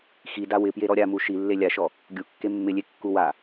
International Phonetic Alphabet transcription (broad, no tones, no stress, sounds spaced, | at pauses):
x i d a w ɪ p j e ɾ ɔ ɾʲ a m u ʃ i lː e lʲ a ʃ ɔ | ɡʲ u kː e mː ɪ lʲ e kː u w a